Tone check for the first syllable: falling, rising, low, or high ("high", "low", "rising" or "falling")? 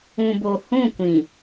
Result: low